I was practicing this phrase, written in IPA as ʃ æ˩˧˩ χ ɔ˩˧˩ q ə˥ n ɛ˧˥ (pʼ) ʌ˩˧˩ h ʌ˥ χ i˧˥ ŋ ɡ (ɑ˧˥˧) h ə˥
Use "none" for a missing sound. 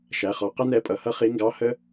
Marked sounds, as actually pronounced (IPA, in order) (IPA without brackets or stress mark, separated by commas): pʼ, ɑ˧˥˧